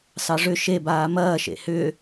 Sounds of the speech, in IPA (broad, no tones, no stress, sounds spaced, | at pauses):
s ɑ ʐ ʏ ʃ e b aː m ɐː ʃ ḛ h ʏː